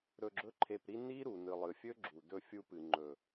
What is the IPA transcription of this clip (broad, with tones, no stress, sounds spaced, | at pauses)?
ɾ ɵ˧ ɡ͡ǁ ɵ˦ ǃʰ e˧ p ɾ i˦ n i˦ ɾ u˨ n ɨ˨ lˠ ɨ˨ fʲ ɵ˦ ɡ͡ǁ u˨ d ɵ˧ fʲ u˦ p ɨ˨ ŋ͡ǃ ɵ˨